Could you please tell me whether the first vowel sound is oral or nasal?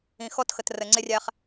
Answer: nasal